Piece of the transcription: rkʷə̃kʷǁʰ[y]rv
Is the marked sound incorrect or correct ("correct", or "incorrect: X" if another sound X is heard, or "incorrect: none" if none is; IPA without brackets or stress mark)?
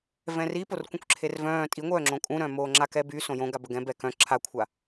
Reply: incorrect: e